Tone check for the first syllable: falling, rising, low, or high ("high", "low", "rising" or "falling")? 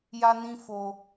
high